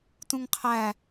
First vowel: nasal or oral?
nasal